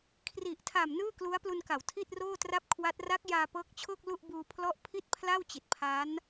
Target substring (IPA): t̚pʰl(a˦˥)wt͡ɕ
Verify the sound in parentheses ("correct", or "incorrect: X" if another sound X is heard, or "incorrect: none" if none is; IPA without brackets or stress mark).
incorrect: a˥˩